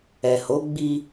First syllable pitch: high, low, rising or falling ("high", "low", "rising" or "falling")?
low